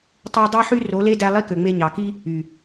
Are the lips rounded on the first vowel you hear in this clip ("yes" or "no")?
yes